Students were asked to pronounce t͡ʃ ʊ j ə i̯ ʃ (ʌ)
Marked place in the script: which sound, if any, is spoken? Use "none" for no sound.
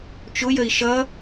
ʌ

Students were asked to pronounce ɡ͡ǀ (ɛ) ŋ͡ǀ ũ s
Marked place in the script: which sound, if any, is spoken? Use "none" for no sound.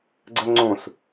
ə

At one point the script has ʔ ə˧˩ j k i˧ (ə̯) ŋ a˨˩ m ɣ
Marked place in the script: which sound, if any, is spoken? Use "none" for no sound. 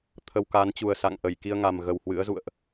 ə̯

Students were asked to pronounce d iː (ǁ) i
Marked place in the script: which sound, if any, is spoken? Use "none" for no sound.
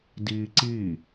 ǀ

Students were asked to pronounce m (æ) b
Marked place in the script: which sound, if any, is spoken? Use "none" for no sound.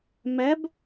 æ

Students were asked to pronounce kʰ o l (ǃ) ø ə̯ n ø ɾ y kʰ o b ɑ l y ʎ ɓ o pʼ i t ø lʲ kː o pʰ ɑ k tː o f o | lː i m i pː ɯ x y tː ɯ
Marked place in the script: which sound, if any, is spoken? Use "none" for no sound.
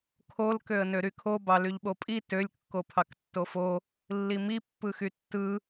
k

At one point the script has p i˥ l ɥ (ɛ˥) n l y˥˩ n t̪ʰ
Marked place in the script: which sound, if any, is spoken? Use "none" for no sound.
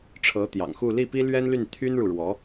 ɛ˥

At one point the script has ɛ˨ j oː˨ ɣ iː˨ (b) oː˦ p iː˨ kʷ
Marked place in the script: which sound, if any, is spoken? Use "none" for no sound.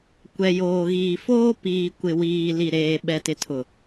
f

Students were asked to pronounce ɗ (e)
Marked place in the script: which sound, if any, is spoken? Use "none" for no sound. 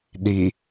i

